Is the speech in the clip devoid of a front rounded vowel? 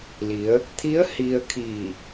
yes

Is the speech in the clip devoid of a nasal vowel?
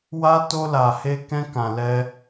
no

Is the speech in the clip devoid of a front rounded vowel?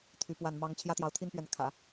no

